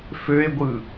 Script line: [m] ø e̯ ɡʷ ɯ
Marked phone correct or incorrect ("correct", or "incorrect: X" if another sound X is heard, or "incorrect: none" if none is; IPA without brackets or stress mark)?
incorrect: f